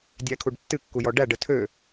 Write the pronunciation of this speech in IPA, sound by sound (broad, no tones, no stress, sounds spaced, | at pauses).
dʲ æ kʰ u ɖ tː ɨ kː u j ɔ ɖ æ ɖ ə tʰ ø